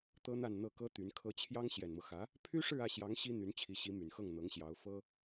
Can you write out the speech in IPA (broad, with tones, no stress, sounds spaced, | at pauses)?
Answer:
t̪ ɤ˥ n̪ a˥˧ n n̪ ɤ˥˩ k ɤ˥ t̪ y˧˥ n kʰ ɤ˥ t͡ɕʰ j ɑ˥ ŋ ɕ j ɛ˨˩ n m ɤ˦ x ä˧˥ | pʰ y˥ ʂ ɻ̩˥˧ ä˥˩ ɕ j ɑ˧˥ ŋ ɕ i˥ n̪ y˧˥ n t͡ɕʰ i˧˥ ɕ i˧˥ m y˨˩ n x ɤ˥˩ ŋ n̪ ɤ˧˥ ŋ ɕ j ɑ˧˥ ʊ̯ f ɤ˥